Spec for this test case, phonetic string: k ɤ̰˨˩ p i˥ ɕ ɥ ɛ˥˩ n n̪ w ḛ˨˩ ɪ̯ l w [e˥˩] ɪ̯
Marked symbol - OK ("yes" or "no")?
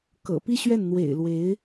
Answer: no